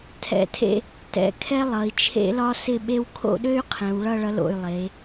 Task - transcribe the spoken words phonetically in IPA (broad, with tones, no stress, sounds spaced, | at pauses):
tʰ ɛ̰˧˩ tʰ ḛ˥˧ | t ɛ̰˧˩ kʰ ɛ˥ lˠ ʌ˩˧ i̯ t͡ʃʰ ḛ˥ l ɒ˥ s ɪ˥˧ ɓ e˥ w kʰ o̰˥˧ ɗ ø˥ y̯ qʰ ɛ̃˩˧ w ɭ ʌ˥˧ ɭ ʌ˧ l o̰˧˩ y̯ lˠ e˩˧